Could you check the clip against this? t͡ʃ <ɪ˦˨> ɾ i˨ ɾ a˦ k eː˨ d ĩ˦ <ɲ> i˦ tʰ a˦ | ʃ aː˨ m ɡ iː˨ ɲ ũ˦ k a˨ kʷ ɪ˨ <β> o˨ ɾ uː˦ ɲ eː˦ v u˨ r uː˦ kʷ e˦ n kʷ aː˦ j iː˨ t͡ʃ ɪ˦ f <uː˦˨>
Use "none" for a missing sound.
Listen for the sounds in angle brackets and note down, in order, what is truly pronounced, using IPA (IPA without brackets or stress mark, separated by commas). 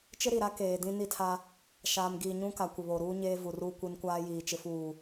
ɪ˦, n, β, uː˦˨